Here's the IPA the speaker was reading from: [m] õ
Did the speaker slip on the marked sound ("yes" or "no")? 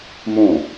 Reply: no